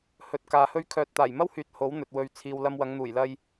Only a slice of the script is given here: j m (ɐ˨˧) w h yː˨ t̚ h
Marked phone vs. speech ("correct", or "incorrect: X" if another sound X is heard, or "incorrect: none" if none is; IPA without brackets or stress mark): incorrect: ɐ˥